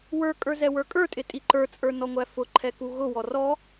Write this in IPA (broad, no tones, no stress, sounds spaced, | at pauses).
w ə˞ kʼ ə˞ z ɛ w ə˞ kʼ ə˞ tʼ ɪ tʼ i ǃ ə˞ t͡sʼ ə˞ n ɔ ŋʷ æ f ʊ ǃʰ ɛ k u ɣ ʊ w ɔ r ɔ